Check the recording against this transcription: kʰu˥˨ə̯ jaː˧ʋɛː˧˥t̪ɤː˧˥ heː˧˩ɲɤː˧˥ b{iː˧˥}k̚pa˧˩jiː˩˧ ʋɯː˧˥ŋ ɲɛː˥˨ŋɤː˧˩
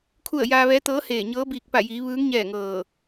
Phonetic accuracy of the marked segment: incorrect: iː˧˩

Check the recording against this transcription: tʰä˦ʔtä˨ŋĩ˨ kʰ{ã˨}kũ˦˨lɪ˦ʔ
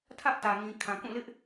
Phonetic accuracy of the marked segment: correct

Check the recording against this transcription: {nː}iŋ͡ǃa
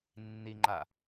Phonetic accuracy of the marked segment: correct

